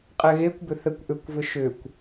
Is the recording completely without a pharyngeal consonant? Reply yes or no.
yes